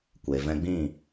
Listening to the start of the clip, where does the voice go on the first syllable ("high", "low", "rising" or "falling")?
low